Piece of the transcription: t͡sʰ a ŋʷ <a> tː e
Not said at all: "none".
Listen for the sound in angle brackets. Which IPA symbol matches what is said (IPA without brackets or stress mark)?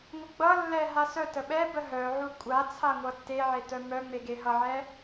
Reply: ʌ